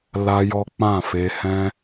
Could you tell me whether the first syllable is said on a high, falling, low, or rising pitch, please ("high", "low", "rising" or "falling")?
high